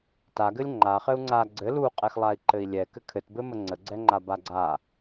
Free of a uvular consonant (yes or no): no